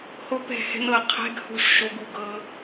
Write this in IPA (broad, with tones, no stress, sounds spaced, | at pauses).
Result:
h o˦ p ɛ̤˦˨ h ɛ̤˦ n ɤ˧ qʰ ɛ̤˦ ɡ h ṳ˦˨ ʂ ʃ o˧ ɡ u˨ ɡ ɤ˦